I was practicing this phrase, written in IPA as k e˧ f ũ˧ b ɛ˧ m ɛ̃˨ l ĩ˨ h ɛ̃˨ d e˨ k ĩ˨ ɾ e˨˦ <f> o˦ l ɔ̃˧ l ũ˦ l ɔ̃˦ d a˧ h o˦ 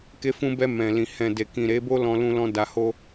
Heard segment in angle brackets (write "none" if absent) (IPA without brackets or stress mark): b